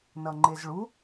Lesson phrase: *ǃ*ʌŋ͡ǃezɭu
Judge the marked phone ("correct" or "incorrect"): incorrect